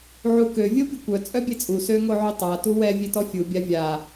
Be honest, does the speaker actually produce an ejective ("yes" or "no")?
yes